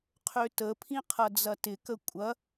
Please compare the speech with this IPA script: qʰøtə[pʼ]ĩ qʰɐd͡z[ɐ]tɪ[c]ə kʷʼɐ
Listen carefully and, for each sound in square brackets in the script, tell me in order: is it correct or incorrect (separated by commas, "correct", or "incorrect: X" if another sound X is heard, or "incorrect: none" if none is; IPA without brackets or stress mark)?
incorrect: pʰ, correct, incorrect: k